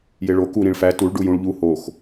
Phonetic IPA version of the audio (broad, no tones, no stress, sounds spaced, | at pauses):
j e ɭ o k u ɾ ĩ ɭ f æ t u ɭ ɖ u j ũ ɭ ʎ u h o x